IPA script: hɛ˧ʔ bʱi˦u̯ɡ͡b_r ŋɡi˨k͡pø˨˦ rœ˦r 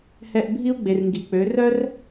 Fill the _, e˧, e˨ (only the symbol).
e˨